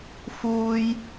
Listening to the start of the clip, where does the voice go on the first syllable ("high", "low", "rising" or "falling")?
high